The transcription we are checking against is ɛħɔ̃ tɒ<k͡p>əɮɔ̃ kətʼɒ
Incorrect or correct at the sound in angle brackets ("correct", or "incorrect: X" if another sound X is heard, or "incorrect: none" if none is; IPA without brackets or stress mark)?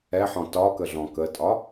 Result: incorrect: k